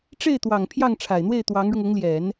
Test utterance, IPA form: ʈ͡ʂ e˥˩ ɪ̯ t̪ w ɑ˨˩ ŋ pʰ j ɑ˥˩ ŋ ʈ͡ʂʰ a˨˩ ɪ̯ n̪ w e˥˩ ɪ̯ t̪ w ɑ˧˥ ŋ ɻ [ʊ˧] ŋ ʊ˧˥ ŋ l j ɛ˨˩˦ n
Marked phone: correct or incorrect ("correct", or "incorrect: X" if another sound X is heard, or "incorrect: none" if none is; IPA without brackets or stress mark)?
correct